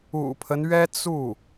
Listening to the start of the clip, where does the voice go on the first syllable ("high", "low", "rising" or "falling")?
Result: low